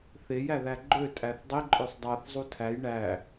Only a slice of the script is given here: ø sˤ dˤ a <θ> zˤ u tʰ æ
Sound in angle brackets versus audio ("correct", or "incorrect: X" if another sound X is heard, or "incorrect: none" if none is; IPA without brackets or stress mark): correct